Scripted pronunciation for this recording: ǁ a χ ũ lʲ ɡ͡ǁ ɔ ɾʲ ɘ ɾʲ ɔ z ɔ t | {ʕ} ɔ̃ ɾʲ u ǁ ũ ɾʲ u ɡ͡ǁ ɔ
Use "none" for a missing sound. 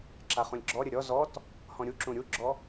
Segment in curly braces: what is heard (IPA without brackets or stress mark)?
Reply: h